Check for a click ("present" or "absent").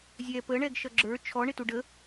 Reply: present